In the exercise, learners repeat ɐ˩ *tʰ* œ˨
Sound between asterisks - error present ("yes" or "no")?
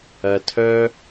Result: no